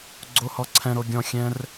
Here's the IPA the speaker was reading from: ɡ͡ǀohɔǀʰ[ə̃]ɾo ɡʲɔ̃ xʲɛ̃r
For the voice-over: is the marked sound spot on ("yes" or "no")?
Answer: no